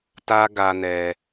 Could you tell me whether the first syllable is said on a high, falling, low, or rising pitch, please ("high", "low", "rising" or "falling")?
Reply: high